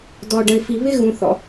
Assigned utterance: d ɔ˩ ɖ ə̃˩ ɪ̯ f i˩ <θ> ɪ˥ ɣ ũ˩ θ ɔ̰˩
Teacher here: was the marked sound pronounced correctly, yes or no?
no